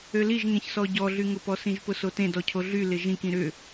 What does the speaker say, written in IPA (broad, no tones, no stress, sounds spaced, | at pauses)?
ø l i ʒ ŋ ẽ ç s ɔ ɟ ɔ ɮ y ŋ ʊ p ɔ s ĩ ʒ p ʊ s o t ẽ d ɔ cʰ o ɮ y l ɪ ʒ ĩ k ĩ ɾ ʏ